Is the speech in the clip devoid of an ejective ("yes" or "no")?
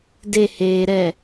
yes